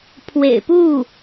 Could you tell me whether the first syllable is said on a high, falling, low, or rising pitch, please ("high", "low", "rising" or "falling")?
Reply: low